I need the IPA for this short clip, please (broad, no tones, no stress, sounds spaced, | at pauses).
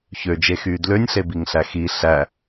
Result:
ç ø d͡ʒ e x yː d l ø nʲ ɬ e b i ŋ ɬ æ x i ɬ æ